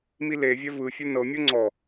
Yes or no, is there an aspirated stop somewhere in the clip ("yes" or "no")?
no